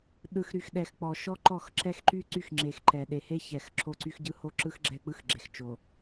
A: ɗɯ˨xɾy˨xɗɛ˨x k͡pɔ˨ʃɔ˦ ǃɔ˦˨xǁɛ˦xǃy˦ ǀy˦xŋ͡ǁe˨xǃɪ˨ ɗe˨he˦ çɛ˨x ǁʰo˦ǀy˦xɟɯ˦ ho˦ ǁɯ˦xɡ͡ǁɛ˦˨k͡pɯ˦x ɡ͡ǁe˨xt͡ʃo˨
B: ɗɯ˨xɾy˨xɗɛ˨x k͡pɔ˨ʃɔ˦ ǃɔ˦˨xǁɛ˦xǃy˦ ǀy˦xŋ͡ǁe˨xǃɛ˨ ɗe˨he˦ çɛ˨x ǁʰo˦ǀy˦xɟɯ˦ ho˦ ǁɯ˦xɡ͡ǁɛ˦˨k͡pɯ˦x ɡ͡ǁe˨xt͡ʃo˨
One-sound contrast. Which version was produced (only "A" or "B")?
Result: B